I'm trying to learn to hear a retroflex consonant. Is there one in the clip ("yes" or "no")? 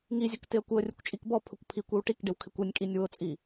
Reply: yes